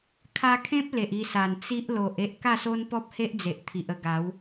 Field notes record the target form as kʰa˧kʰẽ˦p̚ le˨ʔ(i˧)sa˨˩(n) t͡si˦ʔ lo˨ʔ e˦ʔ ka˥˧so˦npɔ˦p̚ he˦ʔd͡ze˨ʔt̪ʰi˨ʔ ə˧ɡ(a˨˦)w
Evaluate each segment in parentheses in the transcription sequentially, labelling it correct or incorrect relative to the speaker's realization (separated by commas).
correct, correct, correct